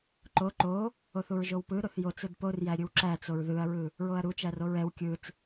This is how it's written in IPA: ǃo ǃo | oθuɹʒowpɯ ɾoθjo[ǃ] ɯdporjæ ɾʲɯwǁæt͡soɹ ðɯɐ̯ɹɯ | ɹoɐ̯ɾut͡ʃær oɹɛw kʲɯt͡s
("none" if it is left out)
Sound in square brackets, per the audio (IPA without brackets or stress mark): t͡s